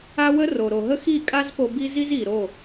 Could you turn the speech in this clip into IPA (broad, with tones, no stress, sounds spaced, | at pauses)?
a˦ w ə˦ r o˨ ɾ o˨ ɦ ə˦ x i˦˨ kʼ a˦ z p o˧ b i˦ z i˦ z i˨ ɾ o˦˨